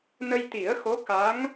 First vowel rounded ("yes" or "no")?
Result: no